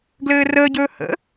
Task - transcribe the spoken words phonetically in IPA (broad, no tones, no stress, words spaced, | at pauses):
ɡlɘːrəːɟɵː hə̰